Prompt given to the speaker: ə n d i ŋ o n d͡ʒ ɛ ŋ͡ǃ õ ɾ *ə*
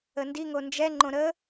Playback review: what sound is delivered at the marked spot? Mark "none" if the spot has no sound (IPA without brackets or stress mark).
ə